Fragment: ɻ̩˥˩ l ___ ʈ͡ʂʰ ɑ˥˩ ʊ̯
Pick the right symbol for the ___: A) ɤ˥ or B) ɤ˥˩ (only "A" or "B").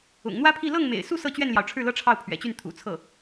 A